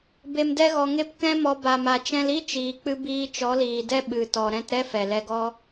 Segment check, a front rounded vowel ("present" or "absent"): absent